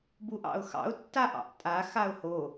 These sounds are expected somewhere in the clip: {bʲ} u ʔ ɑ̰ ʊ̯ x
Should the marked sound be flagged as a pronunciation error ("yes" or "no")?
yes